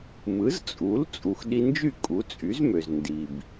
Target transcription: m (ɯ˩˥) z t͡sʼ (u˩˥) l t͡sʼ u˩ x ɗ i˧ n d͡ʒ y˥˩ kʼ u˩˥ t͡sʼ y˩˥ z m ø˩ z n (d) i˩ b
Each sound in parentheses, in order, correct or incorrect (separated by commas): correct, correct, correct